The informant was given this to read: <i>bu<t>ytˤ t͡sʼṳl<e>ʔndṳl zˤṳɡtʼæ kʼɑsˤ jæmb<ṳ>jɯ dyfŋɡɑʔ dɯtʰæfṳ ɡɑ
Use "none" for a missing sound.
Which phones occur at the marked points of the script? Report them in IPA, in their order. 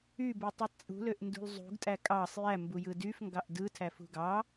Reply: y, tˤ, ø, u

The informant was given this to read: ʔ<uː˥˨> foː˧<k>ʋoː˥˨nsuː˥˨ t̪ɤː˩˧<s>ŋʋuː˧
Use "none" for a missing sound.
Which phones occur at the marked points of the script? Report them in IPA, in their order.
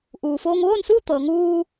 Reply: uː˩, ŋ, none

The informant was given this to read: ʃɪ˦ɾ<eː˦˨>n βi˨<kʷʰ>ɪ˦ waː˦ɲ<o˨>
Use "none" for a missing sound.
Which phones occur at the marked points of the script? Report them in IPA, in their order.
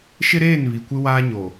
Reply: eː˦˨, kʷ, o˨

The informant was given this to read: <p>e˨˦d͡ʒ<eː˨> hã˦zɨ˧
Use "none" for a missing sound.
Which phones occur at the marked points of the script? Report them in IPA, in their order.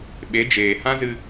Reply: ɓ, eː˨

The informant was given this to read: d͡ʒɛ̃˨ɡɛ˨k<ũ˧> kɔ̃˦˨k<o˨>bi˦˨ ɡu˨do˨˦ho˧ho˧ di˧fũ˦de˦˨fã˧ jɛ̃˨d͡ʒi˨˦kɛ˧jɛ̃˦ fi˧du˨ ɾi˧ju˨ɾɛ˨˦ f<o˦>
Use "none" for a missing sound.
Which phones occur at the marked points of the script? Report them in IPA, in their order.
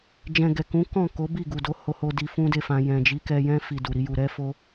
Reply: ũ˨˦, o˨˦, o˦

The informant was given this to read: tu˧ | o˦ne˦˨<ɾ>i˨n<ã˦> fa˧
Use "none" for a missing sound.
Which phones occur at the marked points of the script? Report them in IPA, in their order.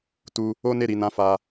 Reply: ɾ, ã˨˦

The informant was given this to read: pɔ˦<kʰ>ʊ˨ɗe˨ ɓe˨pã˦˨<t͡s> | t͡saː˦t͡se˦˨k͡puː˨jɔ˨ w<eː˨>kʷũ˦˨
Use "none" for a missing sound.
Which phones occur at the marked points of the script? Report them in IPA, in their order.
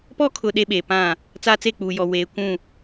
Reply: kʰ, none, eː˨

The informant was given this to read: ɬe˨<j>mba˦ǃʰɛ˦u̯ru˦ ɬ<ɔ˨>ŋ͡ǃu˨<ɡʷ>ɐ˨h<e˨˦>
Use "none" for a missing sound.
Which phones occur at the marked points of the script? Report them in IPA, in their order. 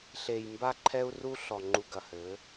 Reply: j, ɔ˨, ɡ, ɘ˨˦

